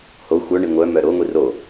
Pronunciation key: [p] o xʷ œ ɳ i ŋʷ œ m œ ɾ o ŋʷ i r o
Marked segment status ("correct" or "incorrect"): incorrect